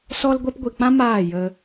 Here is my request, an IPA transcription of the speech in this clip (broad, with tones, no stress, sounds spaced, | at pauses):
s ɔ˧ l ɡʷ ɛ˧ p ɡʷ i˨ k͡p ã˦ m aː˦˨ j ə˧